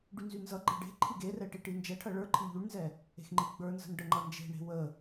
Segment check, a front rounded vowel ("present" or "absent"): present